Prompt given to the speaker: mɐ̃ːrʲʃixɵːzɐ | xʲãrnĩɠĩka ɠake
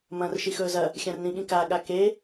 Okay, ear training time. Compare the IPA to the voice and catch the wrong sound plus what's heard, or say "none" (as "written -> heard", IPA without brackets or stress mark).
rʲ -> r